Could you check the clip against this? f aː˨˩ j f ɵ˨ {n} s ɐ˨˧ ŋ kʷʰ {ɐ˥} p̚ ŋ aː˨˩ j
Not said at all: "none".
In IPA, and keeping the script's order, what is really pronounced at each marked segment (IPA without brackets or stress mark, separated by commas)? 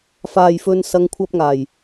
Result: n, ɐ˧